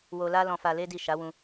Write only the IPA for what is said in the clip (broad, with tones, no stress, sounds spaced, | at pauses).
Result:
w o˧ l a˦ l ɔ̃˧ f a˧ l e˦ d i˦˨ ʃ a˨˦ w ũ˧